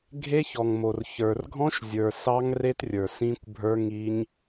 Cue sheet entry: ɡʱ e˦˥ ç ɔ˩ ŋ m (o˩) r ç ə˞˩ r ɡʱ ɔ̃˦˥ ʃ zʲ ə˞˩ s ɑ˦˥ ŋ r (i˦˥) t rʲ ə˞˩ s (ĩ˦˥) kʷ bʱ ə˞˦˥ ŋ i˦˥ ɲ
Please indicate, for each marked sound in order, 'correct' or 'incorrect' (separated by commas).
correct, incorrect, correct